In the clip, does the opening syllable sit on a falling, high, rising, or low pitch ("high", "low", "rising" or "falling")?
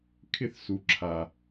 high